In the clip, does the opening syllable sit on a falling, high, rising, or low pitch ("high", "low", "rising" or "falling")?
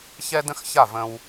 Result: high